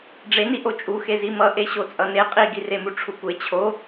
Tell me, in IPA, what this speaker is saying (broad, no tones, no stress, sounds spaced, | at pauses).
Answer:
ɖ͡ʐ e n i ʔ o t͡ʃʼ u x e z i m ʌ ʔ e ɕ o t͡sʼ ʌ n e qʼ i ɡ i r e m u ʈ͡ʂʰ u kʷ e t͡ɕʰ o